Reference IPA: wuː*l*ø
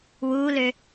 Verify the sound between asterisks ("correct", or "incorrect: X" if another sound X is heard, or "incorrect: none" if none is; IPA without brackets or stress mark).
correct